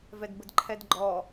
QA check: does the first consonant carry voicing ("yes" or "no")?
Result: yes